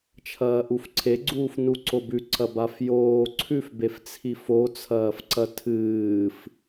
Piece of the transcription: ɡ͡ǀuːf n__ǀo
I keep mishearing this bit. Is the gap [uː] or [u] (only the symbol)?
u